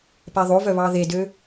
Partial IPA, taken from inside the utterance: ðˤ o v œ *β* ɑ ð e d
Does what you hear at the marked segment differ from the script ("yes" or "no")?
no